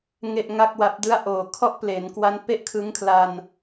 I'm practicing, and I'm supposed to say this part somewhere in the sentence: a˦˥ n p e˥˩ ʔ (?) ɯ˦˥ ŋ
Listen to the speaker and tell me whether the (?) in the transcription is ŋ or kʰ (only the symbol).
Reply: kʰ